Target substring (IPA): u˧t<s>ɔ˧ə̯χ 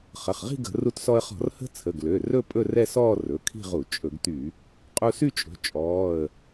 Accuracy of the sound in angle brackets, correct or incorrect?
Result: correct